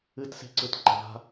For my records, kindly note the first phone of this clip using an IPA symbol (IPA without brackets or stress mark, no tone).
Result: ɨ